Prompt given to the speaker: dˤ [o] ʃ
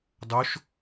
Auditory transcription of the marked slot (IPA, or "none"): o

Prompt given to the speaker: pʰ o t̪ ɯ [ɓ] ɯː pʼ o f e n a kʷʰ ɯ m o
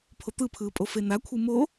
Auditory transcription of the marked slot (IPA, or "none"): pʰ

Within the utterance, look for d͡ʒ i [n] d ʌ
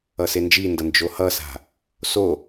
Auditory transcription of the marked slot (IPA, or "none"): n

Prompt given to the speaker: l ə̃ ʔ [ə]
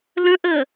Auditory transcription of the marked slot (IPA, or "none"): ə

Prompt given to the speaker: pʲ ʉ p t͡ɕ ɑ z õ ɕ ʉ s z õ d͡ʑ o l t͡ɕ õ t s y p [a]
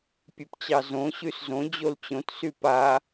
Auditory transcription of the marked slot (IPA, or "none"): a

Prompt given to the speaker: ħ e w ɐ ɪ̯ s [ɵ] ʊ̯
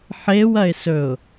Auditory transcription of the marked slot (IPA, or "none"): ɵ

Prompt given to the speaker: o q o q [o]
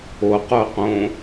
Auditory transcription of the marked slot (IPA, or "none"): õ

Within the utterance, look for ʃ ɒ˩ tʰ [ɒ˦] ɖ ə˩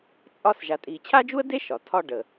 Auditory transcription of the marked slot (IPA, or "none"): ɒ˦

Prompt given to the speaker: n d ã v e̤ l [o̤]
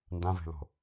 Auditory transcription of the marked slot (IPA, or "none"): o̤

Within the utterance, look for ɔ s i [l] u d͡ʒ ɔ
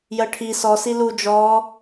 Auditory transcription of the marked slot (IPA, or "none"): l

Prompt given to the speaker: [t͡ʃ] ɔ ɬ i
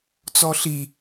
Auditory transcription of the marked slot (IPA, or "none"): t͡s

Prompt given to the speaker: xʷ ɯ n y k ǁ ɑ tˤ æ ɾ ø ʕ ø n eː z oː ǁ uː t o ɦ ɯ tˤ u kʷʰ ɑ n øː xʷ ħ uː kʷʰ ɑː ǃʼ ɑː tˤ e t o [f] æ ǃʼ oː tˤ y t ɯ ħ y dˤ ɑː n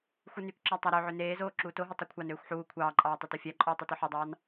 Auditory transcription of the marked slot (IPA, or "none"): fʲ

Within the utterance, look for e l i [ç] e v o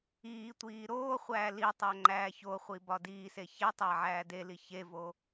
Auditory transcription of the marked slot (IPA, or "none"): ç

